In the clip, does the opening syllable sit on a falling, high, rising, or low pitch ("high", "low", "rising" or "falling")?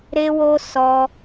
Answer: high